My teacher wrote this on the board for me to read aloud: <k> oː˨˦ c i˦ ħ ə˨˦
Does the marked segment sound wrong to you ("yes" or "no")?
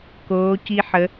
no